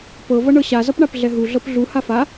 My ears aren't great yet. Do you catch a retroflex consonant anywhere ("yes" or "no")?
yes